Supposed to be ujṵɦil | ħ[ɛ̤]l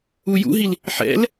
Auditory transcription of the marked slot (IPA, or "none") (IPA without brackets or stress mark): ɛ̰